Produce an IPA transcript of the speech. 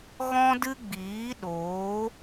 ɣɔ̃˦dɨ˦ɡ͡biː˨˦ɗoː˨˦

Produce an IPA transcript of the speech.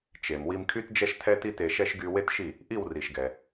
t͡ʃe˩m wi˧mkʰy˥td͡ʒɛ˥ʃ tʰɛ˥ti˥te˧ʃɛ˥ʃ ɡy˧ we˥tʃi˥˩ | ʔi˥˩wri˩ʃɡɛ˩

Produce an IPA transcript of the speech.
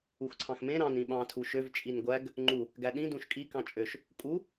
uxǀʰɑ̃xmẽ ɾɑ̃n ĩɓɑ̃ tʰuʃøv t͡ʃʼinɡʷæɡ | ŋ͡ǃu | ɡæɗĩ dũʃkʼi kɑ̃t͡ʃʼøʃ | kʼu

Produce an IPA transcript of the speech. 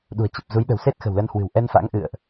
ɗṳ˨˩ə̯t͡ɕə˨˩p̚zu˨˦j ɗə̤˨˩wse˦˥t̚xə̤˨˩w lə˧nhwɨ̤˨˩w ʔɛ˧nfa̰˧˥ŋ ʔɨ̰˧˨ə̯ʔ

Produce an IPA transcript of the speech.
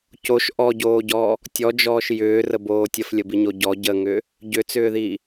coʃ ʔɔɟoːɟɔː | tʲɔd͡ʒɔːʃ jʏːrəboː tʲəflʲəbiɲo ɟɔ ɟəŋʏː | ɟʏt͡sʏːðiː

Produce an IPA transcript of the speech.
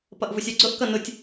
pʌʔvʊsʲɜɡ͡ǀʊʔ kʌnʊtʲ

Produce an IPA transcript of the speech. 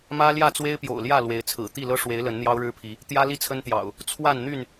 mä˦ljä˥˨t͡swe˦ɪ̯pjo̰˨˩ʊ̯ ljä˥˨ lwe˨˦ɪ̯t͡sʰɹ̩˨˩ t̪i˥˨lɤ˦ʂwe˨˦ɪ̯ lə˨˦nn̪jɑ˦ʊ̯ɻɻ̩˦pʰi˨˦ | t̪jä˦li˦t͡sʰə˦nt̪jɑ̰˨˩ʊ̯ | t͡sʰwa˥˨n n̪y˥˨n

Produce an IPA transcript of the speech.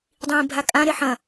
dˤĩːbʱakʼã ɾeħɐ̃

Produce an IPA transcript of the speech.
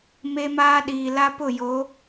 me˦maː˦ ɗiː˨la˦pʊ˦˨jo˨˦

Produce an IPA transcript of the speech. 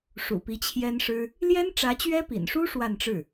ʂṵ˨˩pi˧˥t͡ɕʰjɛ˥nʂɻ̩˥ | ljɛ˥n ʈ͡ʂä˧˥t͡ɕɥɛ˥pḭ˨˩nʂu˥ ʂwa˥˧nʈ͡ʂɻ̩˥˩

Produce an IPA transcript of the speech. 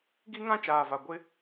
ɡi˦ŋã˦t͡ʃaː˨va˨ ɡʷɪ˦

